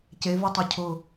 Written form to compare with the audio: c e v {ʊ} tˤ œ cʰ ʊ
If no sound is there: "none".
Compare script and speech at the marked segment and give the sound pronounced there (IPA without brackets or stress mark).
u